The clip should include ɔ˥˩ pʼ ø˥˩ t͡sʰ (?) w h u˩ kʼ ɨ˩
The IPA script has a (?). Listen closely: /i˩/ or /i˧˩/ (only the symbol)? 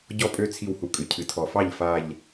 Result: i˧˩